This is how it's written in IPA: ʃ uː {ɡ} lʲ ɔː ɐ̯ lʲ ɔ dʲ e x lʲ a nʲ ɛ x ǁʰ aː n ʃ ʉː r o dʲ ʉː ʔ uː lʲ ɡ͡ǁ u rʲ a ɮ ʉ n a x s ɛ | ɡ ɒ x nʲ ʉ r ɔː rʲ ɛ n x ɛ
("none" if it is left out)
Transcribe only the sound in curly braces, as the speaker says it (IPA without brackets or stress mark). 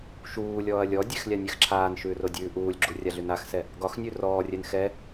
none